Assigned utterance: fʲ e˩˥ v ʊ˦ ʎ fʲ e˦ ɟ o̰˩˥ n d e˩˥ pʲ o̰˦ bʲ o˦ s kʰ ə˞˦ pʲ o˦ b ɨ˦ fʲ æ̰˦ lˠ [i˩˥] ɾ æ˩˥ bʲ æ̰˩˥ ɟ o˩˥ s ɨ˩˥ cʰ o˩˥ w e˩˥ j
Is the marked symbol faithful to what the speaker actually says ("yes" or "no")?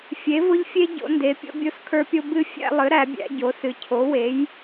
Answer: no